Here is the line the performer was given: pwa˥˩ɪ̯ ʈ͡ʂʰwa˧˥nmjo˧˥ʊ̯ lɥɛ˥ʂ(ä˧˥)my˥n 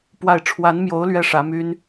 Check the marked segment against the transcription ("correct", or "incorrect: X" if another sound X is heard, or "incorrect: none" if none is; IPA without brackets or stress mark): correct